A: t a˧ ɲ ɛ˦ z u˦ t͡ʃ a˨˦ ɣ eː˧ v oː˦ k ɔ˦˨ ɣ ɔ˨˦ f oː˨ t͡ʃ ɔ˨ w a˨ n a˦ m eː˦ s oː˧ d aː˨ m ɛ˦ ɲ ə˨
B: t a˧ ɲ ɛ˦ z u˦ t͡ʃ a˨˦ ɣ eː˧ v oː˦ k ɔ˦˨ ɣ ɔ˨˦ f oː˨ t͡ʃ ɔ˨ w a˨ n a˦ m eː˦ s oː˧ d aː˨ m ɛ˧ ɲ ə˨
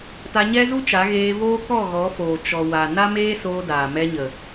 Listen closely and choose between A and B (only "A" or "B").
B